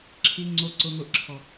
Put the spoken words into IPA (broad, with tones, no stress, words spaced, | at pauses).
ǁʰi˨ŋ͡ǀo˨ǀʊ˨ŋʊ˨ʔ ǁʰɔ˨